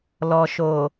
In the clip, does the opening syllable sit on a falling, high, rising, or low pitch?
low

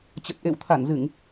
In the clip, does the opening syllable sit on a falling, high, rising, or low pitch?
low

